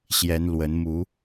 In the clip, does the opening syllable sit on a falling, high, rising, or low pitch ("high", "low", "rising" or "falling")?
rising